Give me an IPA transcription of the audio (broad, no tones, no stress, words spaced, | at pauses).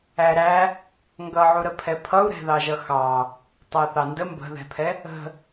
æɾæ | ŋɡʌʕuɾəpʰɛ pʰʌu̯ɾɛ̤ðɑʒʌ xɑ | tˤæθɑndə mbə̤ðɛ̤pʰɛ | ə̤